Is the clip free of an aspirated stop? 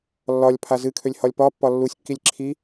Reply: no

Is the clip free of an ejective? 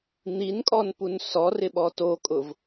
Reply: no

